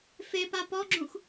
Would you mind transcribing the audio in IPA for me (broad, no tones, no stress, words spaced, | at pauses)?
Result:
fepa pɔɡ͡ǁũx